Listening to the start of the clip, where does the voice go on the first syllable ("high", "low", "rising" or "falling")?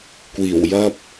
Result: low